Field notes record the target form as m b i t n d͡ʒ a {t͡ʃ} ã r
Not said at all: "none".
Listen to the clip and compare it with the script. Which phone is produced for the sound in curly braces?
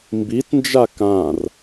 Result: k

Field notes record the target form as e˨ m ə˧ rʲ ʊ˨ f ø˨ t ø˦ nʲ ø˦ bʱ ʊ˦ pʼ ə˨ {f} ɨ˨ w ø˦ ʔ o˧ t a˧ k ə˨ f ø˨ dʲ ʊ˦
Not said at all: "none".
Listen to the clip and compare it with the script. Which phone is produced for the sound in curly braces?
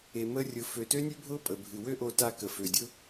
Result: bʱ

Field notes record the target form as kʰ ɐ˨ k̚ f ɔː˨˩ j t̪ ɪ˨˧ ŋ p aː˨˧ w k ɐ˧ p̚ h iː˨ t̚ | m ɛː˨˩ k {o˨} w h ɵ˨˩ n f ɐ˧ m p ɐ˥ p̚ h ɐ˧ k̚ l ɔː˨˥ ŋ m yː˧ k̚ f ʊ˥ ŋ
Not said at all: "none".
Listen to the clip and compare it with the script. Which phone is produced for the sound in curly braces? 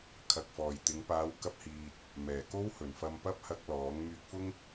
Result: o˥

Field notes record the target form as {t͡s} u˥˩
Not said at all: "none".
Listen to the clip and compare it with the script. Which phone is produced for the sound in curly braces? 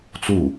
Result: t͡s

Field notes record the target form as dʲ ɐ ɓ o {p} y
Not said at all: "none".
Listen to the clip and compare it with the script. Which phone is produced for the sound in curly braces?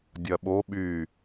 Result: ɓ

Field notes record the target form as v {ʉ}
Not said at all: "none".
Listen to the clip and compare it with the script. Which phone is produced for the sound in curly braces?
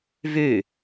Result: ʉ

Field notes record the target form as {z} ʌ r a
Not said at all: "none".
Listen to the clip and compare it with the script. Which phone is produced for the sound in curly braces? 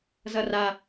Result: z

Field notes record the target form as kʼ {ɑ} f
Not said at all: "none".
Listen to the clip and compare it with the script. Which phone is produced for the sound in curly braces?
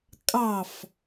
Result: ɑ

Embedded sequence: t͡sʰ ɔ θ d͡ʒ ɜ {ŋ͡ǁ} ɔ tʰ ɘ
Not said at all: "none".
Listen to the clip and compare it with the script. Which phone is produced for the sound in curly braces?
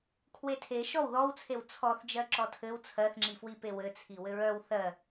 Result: ǁ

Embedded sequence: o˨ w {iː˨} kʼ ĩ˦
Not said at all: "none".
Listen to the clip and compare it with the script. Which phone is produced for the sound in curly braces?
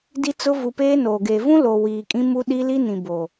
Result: iː˨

